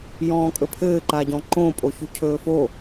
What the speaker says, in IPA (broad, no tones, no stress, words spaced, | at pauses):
jɔ̃ːkʼɵpʰɘː ǃaɟɔ̃ǃõ pʼoçucʰɵːfo